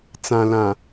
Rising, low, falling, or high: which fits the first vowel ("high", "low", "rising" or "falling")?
low